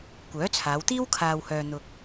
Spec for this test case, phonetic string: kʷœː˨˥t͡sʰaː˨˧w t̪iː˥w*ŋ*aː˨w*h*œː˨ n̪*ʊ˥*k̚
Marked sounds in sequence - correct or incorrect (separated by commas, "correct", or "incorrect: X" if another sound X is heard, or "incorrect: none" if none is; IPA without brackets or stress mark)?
incorrect: kʰ, correct, incorrect: ʊ˧